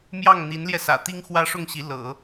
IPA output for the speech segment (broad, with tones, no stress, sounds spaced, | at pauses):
m j ɑ˥˩ ŋ n̪ i˧˥ n l j ɛ˧ s ä̰˨˩ t̪ i˥ ŋ x w ä˥ ʂ ʊ˥˩ ŋ ɕ i˧˥ l ɤ̰˨˩˦